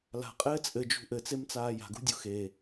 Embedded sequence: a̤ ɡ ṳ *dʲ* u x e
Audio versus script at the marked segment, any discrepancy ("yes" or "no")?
no